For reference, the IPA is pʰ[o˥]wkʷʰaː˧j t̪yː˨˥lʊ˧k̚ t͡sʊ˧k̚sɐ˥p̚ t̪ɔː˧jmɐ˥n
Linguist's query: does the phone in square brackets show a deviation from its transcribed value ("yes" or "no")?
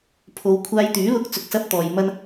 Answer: yes